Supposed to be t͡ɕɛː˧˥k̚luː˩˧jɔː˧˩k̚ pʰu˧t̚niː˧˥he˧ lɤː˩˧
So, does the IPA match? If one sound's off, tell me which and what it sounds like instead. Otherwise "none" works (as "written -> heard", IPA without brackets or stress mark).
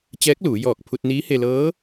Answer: ɤː˩˧ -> ɤː˧˥